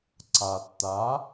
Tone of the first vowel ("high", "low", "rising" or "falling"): low